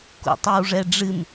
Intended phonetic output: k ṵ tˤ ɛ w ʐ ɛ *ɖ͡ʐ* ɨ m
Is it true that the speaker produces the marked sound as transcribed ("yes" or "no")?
yes